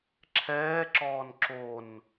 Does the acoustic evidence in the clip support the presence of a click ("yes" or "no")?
yes